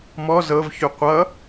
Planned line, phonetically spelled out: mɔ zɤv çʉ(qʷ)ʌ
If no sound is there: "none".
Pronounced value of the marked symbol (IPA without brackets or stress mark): qʷ